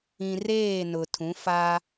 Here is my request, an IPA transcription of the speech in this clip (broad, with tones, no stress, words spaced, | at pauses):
ĩ˨reː˦˨ nʊ˨tʰũ˨˦ fa˦